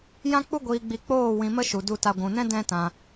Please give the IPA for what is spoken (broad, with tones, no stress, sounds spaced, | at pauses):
j ã˦ k͡p u˦ ɡʷ iː˧ ɡ͡b i˧ k͡p oː˦˨ w ĩ˧ m ə˦ ʃ u˨ d u˨ t a˨ ɡʷ ũ˨ n ɛ̃˦ d ɛ̃˦ t ã˧